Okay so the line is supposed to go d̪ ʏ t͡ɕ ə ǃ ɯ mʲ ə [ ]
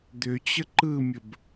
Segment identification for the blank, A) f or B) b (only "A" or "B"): B